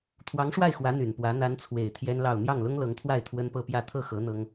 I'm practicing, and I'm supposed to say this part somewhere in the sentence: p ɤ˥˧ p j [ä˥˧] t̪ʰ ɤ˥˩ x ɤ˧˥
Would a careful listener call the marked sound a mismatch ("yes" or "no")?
no